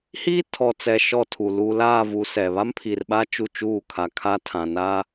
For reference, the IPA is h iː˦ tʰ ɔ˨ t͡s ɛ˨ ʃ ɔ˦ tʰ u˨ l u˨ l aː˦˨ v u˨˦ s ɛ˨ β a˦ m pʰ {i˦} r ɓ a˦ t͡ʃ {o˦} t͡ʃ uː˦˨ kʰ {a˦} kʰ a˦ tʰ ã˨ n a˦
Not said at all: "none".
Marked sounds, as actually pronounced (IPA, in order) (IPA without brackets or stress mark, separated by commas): i˨, u˦, a˨